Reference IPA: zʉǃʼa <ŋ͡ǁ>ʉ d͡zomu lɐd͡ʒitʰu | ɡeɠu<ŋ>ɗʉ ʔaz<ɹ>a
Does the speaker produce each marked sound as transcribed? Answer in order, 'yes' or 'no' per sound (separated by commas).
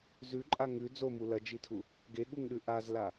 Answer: no, yes, no